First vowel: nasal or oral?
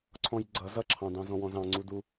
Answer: nasal